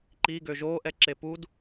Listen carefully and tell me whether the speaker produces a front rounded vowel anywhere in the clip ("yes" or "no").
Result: yes